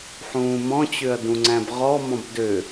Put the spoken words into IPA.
ħ ũː m ɔ̃ t͡ɕ ø ɐ̯ d ũ ŋ͡ǀ æ̃ b ʁ ɔ m ɔ̃ b d ø

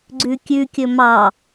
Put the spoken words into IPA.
ɡ͡ǀ ʉ kʲ ʉ kʲ ɵ m ɑ

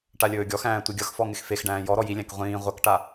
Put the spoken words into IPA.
ʈ a lʲ ɵː ɡʲ ɔ x æ̃ː tʷ i ɡʲ ʌ x f ɔ ŋ ɪ x f e x ɖ æ̃ː j ɔ ɾ ɔ j i lʲ æ̃ k ʁʷ ĩː ʁʷ ʌ k ʈ a

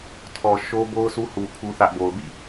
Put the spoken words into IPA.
tʰ ɔ˨ ʃ o˦ b o˦ ʊ̯ sʰ u˦ h u˨ pʰ u˦ θ ä˦ ʔ b o˨ ʊ̯ b ḭ˦˨

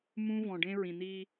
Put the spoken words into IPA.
m ũ˦ v ɔ̃˨ ɖ ẽ˦ ɹ ĩ˨ n̪ i˦

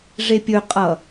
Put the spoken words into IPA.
ʐ e pʲ ɵ qʼ ʌ

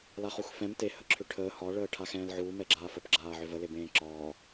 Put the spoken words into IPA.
l a χ u x f ɛ̃ m t e h ə ǁʰ ʏ ʈʰ əː h ɒ ɭ əː ʈʰ a x ɛ̃ː l ʕ uː m ɛ ɡ͡ǁ aː f ə p ɡ͡ǁ aː ʕ ʏ v ə l e b ẽː ǁ ɒː

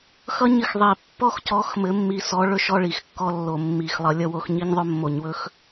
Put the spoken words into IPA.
x ʌ˥ ɲ ɘ˥ x ðˤ i˨˩ pː ɔ˥ x c ɔ˧˥ x m ɘ˧˥ mː i˧˥ s ɔ˧˥ ɭ ɵ˥ ʃ ɔ˥ ɭ i˧˩˧ x kː ɔ˥ lː o˧˩˧ mː i˧˩˧ x lˠ ʌ˧˥ lʲ ʌ˥ w o˧˥ x ɲ i˥ ɲ ðˤ ɵ˥ mː o˧˩˧ ɲ w ɵ˥ x

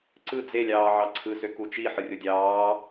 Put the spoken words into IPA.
ǀ ɯ d͡z e lʲ ɑː ʕ ɑ ǀʰ ɯ s ø k u t͡ʃ i ħ ɯ rʲ o dʲ ɑː

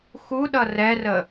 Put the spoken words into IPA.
x u ɗ ʌ r ɛ r ə

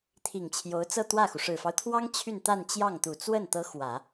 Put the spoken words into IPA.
t̪ʰ i˨˩ ŋ t͡ɕʰ j o˧˥ ʊ̯ t͡s ɤ˥˧ t̪ w ä˥˩ x u˩ ʂ ɻ̩˨˩ f ɑ˦ ʊ̯ t̪ʰ w ɑ˥ ŋ t͡ɕʰ y˥˧ n t̪ a˥˧ n t͡ɕ j ɑ˥˩ ŋ t̪ u˨˩ t͡s w ə˥˩ n t̪ ɤ˧˥ x w ä˨˩˦

